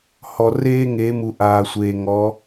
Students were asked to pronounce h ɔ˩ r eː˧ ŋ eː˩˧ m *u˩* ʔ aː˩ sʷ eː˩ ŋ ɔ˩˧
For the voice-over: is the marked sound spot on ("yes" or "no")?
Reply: yes